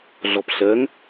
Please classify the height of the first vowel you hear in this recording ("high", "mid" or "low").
mid